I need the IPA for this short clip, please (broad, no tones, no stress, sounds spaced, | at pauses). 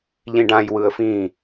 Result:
ʎ ĩ ɖ ã j w ɯ ə̯ f ĩ